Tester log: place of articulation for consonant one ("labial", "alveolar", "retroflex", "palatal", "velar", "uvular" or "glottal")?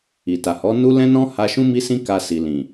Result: alveolar